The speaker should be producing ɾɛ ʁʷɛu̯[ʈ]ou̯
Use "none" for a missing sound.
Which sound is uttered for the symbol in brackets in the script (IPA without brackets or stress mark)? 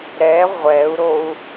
ɾ